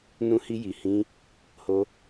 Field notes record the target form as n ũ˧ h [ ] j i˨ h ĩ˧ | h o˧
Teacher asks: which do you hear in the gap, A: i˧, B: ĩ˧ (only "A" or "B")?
A